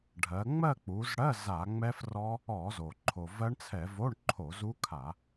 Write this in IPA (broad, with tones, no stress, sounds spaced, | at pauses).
ɖʱ ɜ˩˧ ŋ͡m ɜ˥˧ k͡p u˩˧ z ɽ ɜ˧˥˧ z a˧˩˧ ŋ͡m ɛ˦˥ f r ɔ˦˥ | ɔ˧˩˧ z o˩ ǃʰ o˩ v ɜ˦˥ ɳ t͡sʰ ɛ˧˩˧ v o˧˥˧ ɳ ǃʰ o˧˩˧ z u˦˥ kʰ a˧˩˧